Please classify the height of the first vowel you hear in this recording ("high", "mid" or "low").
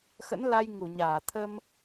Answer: mid